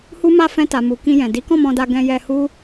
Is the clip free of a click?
yes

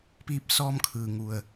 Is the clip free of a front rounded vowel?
yes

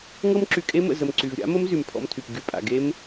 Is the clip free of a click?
no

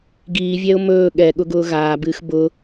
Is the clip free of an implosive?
no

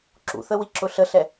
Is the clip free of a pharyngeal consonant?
yes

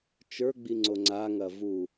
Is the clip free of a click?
no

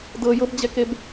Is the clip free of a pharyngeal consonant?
yes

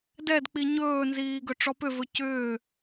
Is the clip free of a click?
yes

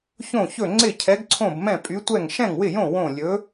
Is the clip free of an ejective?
no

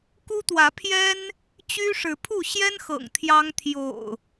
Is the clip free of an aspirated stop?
no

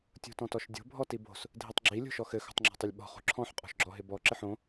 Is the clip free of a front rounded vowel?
yes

